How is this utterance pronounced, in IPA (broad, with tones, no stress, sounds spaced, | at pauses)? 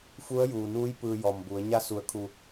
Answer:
f u˧˥ ə̯ j uː˩ n uː˧˥ j p ɯː˧ j ɔː˩ m b u˩˧ ə̯ ɲ a˧ s u˩ ə̯ kʰ u˩